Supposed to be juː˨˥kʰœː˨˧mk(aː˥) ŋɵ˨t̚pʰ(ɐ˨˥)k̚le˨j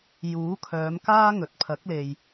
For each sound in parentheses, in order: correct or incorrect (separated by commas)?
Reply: correct, correct